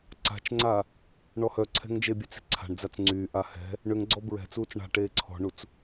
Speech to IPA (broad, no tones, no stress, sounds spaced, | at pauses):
ǀ a̤ t͡ʃ ŋ͡ǀ a | ɳ ɔ h œ ǀʰ ɛ̤ ŋ d͡ʒ e bʲ e t͡s e̤ ǀʰ a̤ ɳ d͡z a t͡s ŋ͡ǀ yː ʔ a h ɛ̤ | ɳ ʏ ŋ ɡ͡ǀ ɔ b ɹ ɛ̤ t͡s uː t͡s ɳ a̤ ʈ eː ǀʰ ɔ̤ ɳ u t͡s